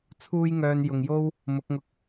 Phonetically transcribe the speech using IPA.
t͡sʰ uː˥ j ŋ œː˧ n j ʊ˨ ŋ j o˥ w | m ʊ˨˥ k̚ ŋ ʊ˧ k̚

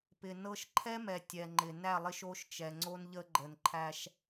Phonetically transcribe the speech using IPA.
p ɪ˨ n ɤ˦ ʃ ǃʰ ɛ˦ m ɛ˨ tʲ ɛ˨ ŋ͡ǃ ɪ˨ n æ˦˨ lˠ ɪ˦ ʃ o˦ ʃ t͡ʃ ɛ˨ ŋ͡ǀ o˦ n ʎ ə˦ ɡ͡ǃ ə˨ n ǃʰ æ˦ ʃ

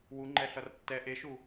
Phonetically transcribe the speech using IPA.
w u ŋ͡ǃ ɛ ɬ ʌ r tː ɛ ʔ e ʃ u

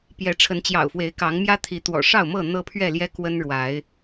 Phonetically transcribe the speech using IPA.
p j ɛ˨˦ ʈ͡ʂʰ ə˨˦ n t͡ɕ j ɑ̰˨˩ ʊ̯ f w e˨˦ ɪ̯ k ɑ˨˦ ŋ m j ä˦ t̪ʰ i˨˦ t̪ w ɔ̰˨˩ ʂ ɑ˥˨ ʊ̯ m ɤ˥˨ n̪ ɤ˦ pʰ ɥ ɛ˥˨ l j ɛ˦ k w ə˦ n ɻ w a˨˦ ɪ̯

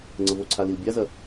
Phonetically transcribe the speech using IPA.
ŋ͡ǀ ə v o ǀʰ a l i l bʲ a z ɐ

